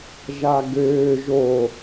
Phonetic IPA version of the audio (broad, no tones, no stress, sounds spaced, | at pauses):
ʒ a ɡ øː ʒ o